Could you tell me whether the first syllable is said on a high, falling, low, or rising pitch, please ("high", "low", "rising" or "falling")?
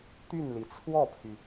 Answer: falling